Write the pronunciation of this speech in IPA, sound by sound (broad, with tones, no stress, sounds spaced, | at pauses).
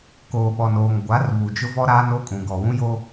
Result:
k oː˨ ɓ ɔ˨ n oː˨ ŋ ɡʷ a˨˦ r β u˨ d͡ʒ ʊ˦ v ɔ˦ ɾ aː˦ n o˦ kʼ ũ˨ ɡ ɔ˨ w ũ˦ j o˦